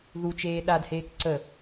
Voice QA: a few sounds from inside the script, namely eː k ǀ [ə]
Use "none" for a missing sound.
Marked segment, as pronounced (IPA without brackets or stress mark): ə